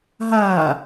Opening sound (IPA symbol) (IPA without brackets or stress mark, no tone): ɦ